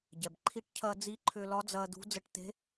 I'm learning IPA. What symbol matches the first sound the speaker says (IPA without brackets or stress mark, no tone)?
ɟ